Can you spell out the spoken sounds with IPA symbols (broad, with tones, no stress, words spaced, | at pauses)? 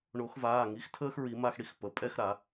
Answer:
ɳo˨˩˦xvaː˩˧˩ŋi˩˥xtʰəː˥x ɹi˨˩˦ ma˥˧xɽi˥x pə˩˧˩ pʼɛ˥˧xɾa˨˩˦